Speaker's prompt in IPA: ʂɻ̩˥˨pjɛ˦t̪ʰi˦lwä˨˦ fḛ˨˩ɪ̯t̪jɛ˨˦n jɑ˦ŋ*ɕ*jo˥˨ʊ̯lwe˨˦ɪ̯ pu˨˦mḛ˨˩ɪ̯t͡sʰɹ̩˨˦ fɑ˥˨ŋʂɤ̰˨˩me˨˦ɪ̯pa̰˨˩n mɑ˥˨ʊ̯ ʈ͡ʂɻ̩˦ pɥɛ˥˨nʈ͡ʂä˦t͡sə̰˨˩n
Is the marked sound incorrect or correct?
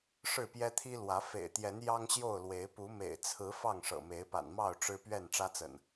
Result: correct